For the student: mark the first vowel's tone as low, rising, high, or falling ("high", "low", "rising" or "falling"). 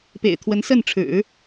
low